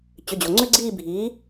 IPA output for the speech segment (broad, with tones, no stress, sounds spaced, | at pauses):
t͡ɕ ʏ˩˧˩ d͡ʑ o˩ ŋ͡ǀ ʏ˥ ɡ͡ǀ iː˥˧ bʱ iː˩˥